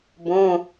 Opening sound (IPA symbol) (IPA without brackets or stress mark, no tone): b